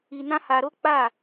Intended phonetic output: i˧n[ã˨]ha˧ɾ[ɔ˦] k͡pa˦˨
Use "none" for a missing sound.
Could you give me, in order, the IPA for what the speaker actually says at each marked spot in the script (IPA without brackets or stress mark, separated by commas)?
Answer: ã˦, o˦